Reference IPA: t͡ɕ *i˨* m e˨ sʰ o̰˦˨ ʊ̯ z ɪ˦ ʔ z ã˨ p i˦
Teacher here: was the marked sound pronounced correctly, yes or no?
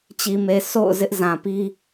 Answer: yes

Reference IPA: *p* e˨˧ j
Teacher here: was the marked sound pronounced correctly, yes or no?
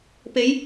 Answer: yes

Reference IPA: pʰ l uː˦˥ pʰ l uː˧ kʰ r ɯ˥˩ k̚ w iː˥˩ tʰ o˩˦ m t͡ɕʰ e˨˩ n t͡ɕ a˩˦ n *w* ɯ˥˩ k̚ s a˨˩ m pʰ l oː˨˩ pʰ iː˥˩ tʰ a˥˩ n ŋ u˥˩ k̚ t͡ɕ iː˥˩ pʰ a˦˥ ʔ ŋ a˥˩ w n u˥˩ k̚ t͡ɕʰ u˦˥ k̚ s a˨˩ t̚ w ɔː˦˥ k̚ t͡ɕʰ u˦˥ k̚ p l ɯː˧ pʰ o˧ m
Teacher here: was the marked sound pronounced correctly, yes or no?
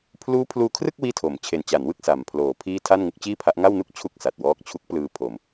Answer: yes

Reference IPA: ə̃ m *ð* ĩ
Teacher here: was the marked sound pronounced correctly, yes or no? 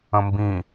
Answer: no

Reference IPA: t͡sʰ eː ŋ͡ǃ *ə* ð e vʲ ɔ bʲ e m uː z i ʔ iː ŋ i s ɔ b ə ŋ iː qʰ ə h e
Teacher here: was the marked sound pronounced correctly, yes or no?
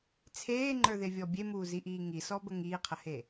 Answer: no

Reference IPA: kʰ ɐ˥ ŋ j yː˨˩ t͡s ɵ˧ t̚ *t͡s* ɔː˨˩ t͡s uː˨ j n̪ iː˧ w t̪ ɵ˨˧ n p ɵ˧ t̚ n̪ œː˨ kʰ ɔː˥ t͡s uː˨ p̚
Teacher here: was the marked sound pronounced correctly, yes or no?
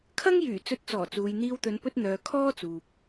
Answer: yes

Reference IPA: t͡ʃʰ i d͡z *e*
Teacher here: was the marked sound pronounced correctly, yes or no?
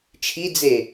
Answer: yes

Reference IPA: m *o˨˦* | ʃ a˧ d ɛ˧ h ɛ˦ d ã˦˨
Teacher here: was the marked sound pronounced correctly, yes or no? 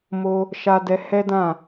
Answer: no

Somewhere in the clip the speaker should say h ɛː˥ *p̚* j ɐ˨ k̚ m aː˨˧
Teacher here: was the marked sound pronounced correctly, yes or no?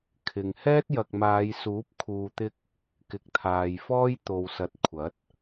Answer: no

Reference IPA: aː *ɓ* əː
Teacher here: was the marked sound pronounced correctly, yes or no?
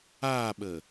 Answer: yes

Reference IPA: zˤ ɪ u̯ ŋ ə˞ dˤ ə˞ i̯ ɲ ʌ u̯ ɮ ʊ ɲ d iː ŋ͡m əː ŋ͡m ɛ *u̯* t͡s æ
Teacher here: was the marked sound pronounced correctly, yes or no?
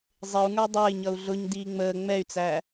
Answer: no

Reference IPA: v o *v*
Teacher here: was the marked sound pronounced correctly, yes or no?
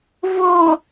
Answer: no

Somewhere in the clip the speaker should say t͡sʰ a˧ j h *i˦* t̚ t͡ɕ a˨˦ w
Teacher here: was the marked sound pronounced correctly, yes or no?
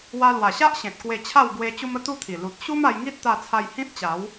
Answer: no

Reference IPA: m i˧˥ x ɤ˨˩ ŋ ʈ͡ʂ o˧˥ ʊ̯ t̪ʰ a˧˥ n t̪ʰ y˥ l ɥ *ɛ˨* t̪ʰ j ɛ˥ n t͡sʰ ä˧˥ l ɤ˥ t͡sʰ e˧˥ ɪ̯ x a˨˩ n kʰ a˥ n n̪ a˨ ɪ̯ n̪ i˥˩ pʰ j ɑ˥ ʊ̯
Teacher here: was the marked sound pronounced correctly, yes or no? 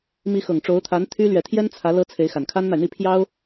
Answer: yes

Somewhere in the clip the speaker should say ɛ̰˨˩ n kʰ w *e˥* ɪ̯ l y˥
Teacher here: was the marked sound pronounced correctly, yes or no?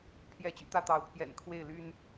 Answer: no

